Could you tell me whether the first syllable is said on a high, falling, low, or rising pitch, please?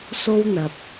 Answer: high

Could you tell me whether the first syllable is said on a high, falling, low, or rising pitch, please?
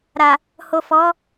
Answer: low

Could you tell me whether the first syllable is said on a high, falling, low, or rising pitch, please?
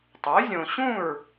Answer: rising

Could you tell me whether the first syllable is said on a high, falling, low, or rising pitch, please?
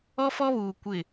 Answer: high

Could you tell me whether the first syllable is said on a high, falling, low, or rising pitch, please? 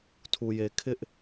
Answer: low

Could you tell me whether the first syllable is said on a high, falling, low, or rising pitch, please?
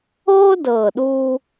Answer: high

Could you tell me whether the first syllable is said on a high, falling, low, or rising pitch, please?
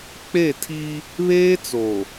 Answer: falling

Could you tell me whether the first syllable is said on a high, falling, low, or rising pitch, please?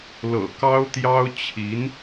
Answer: low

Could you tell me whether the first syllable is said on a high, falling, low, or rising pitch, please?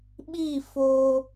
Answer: falling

